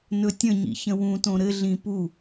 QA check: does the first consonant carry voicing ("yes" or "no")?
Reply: yes